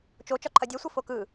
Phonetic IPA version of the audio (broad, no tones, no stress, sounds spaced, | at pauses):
t͡ʃ o t͡ʃ ɒ ǃʰ ɐ dʲ ɛ sʷ ə f o k ɯ